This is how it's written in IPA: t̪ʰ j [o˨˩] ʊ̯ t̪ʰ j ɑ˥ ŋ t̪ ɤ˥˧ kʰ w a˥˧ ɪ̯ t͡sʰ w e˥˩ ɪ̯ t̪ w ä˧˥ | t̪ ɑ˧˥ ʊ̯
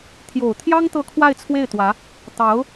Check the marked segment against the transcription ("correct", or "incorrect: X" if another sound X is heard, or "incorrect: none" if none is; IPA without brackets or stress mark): correct